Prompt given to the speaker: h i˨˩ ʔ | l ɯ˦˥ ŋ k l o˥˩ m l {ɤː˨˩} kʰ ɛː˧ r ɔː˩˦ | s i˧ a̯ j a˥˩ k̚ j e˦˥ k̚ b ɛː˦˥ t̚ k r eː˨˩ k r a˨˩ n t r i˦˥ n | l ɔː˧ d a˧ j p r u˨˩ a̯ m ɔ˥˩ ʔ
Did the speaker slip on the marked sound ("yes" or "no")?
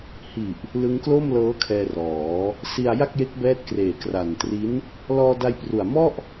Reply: yes